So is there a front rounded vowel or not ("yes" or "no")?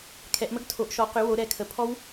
yes